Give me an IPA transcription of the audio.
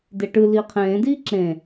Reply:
d e ʈ ɯ l iː qʰ ẽː d iː ǁ ẽ

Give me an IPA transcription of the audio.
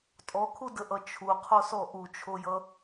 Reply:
tʼ ɔ kʰ u d ə ʔ ʌ t͡ʃʰ u qʰ o s ɔ ʔ u t͡ʃʰ o j ʌ

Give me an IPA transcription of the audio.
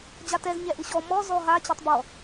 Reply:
d͡ʑ a t ɛ z ɲ ɛ ʔ ɨ ɕ ɔ m ɔ z ɔ ɦ a t͡ɕ e tˤ b ɔ

